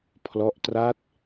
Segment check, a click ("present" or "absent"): absent